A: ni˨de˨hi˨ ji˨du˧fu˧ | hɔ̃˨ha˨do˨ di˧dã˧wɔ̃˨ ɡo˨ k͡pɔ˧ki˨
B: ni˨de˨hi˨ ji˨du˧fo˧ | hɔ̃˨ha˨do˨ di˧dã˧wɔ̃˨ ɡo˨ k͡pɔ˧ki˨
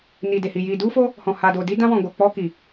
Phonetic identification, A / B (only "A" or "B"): B